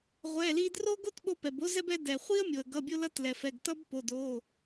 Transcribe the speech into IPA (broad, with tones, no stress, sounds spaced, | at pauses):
ʁʷ ɛ˩˧˩ l i˧ d r o˥ ɡ o˥ t ɓ o˧ p ɛ˩ b o˥ z ɛ˥ b ɛ˥ d ɛ˩ χʷ i˥ ə̯ mʲ o˩ ə̯ ɡ ʌ˩˧˩ bʲ o˧ l ʌ˧ t l ɛ˩ f ɛ˩˧˩ ɡ t ʌ˥ b p o˩˧˩ d o˩˧˩